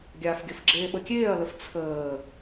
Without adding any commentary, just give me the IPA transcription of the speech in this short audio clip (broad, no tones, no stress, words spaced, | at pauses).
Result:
ɡʲaːfɡʲəfɡ͡ǁeː ɓəkʲeːɐ̯ləf t͡sʰəː